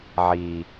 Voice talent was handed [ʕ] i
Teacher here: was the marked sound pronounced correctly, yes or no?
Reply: yes